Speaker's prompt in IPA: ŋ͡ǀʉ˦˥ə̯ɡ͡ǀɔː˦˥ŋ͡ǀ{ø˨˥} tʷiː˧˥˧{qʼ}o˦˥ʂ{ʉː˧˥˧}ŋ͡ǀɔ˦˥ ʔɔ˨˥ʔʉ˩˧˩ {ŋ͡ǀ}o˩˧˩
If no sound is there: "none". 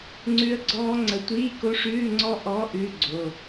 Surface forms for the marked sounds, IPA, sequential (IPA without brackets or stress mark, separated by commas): ə˨˥, k, ʉː˧˥˧, ɡ͡ǀ